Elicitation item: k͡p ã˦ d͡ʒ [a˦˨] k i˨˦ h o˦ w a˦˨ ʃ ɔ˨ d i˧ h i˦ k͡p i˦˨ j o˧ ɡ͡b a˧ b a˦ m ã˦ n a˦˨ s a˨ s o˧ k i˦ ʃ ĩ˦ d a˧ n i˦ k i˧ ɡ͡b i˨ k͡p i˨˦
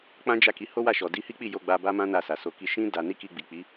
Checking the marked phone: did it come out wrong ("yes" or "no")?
no